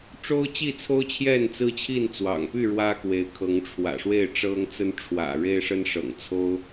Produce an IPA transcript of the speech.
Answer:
ʈ͡ʂ o˦ ʊ̯ t͡ɕ i˥˨ t͡sʰ o˦ ʊ̯ t͡ɕʰ j ɛ˥˨ n t͡s ɹ̩˦ t͡ɕʰ i˥˨ n t͡s w ɑ̰˨˩ ŋ p y˥˨ ɻ w ä˦ k w e˨˦ ɪ̯ kʰ ɤ˨˦ ŋ ʈ͡ʂʰ w ä̰˨˩ ʂ w e˥˨ ɪ̯ ʈ͡ʂ ɤ˦ ŋ t͡s ə˦ n ʈ͡ʂʰ w ä̰˨˩ ɻ e˦ ɪ̯ ʂ ə˦ n ʂ ɤ̰˨˩ ŋ t͡sʰ o˦ ʊ̯

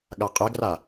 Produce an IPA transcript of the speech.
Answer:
ɠ a qʼ ɛ ɡ r a

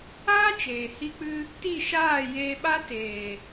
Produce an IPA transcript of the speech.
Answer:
aː˦ t͡ʃ eː˨ h i˧ k͡p ɨ˧ | t i˦˨ ʃ aː˦˨ j eː˧ ɓ a˦ t eː˨

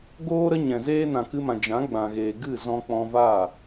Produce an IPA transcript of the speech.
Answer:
ɡ oː˦ ɾ ə˦ ɲ ɛ̃˨ z eː˦ n ã˨ k ɨ˧ m ã˨ d͡ʒ ã˨˦ ɡ͡b ã˨ ɣ eː˨ ɡ ɨ˦˨ z ɔ̃˧ k͡p ɔ̃˧ v a˦˨

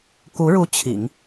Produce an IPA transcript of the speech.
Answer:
k u˧˥ ɻ u˧˥ t͡ɕʰ ḭ˨˩˦ ŋ

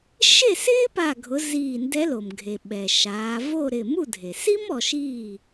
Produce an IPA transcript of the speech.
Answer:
ʃ e˥˩ s ɪː˥ p a˧˩ ɡʱ ʊ˩˧ z iː˧˩ n d ɛ˧˥ l o˩ m ɡʱ e˩ ɓ ɛ˩ ʃ aː˩˧ v o˥˩ ɾ ɪ˧˩ m u˥˩ dʱ e˩ s iː˥ m ɔ˩˧ ʃ iː˥˩

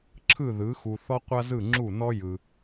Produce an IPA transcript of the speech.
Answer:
ǁʰ ɯ˥˩ ð ɯ˩˥ x u˨ θ ɔ˥ qʷ a˥ z ɯ˥˩ ŋ͡ǁ u˥˩ n ɔ˥ j ɯ˨

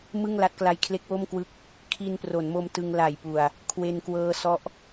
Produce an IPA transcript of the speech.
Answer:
m ɯ˥˩ ŋ l a˦˥ t̚ k l a˦˥ j kʰ l e˦˥ k̚ w o˥˩ m k w ɯ˦˥ k̚ | kʰ iː˧ n p r o˩˦ n m o˧ m t ɯ˧ ŋ l a˨˩ j p u˨˩ a̯ | kʰ w e˧ n k w ɤː˧ s ɔ˦˥ ʔ

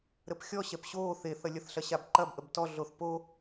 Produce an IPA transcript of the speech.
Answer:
ɾ ə p xʲ ɔ ɕ ɛ p ɕ o θ e θ ɐ lʲ ɐ θ ɬ ɐ ɕ a b ǃ ɐ b ʔ ə b t ɔ ɮ o θ p o

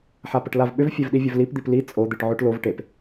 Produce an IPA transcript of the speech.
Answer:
ħ a p ə ʈ l a v ɓ ʏ v fʲ e v ɗ i vʲ ɵ v l i p d̪ i p l i t͡sʼ o d̪ i ʈ ʕ o ʈ l o v ʈ e p

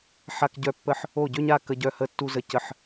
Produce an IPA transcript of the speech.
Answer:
ħ a˥ k ɟ œ˥ pː ə˥ ħ | o˥˧ ɟ ø˥ ɲ a˥˧ k ə˥ ɟ œ˥ h ə˥ tː u˥ z ə˥˧ c ə˥˧ ħ

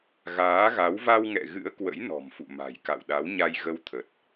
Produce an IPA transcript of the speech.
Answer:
ɣ aː˨˦ ɣ a˨˦ w v a˧ w ŋ ɛ̰˧˨ ɣ ɨ̰˧˥ ə̯ k w ə̰˧˥ j n ɔ̤˨˩ m f ṵ˧˨ m a̤˨˩ j k a̰˧˨ w ɗ a˨˦ w ɲ a˧ j ɣ ə˧ w t̪ʰ ə˨˩ t̚

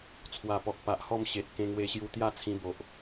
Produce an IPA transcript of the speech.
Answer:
t͡sʰ w a˨˩ p ɔ˨ k̚ p a˨ ʔ h ɔ˦ m ɕ e˨ t̚ k ẽ˧ ŋ w e˧ ɕ j u˧ t̪ j a˥˧ t͡sʰ ĩ˧ b o˨ ʔ

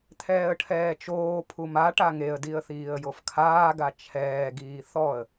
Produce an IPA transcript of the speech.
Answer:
t̪ʰ ɛː ə̯ ʈʰ ɛː t͡ʃ oː pʰ u m a ʈ a ŋ e ə̯ d i ə̯ θ iː ə̯ j o f kʰ aː ɡ a t͡ʃʰ ɛː ɡ iː θ ɔ ə̯

